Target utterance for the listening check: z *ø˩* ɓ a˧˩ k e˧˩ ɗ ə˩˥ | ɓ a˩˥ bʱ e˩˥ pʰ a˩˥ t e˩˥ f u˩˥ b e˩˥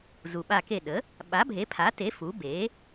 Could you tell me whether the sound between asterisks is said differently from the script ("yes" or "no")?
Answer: yes